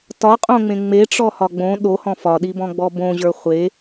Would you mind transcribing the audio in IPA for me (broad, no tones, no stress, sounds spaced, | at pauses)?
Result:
t ɒ qʼ õ ŋ͡m ẽ ŋ͡m e ʈ͡ʂ ɔ h ɒ ɡ͡b õ ɗ o h ɔ̃ f ɒ ɗ i b ɔ̃ ɡ͡b ɔ b õ ʑ ə˞ χʷ e